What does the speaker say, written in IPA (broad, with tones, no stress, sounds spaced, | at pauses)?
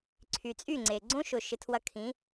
ǀʰ y˩ t͡sʼ y˥˩ ŋ͡ǀ e˩ ɡ͡ǀ õ˥ ʃ ʊ˩ ʃ ɪ˩˥ tʰ w ɐ˧ kʰ ĩ˩˥